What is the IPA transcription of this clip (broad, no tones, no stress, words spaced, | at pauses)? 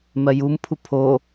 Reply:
mɜjumpʰu pʰo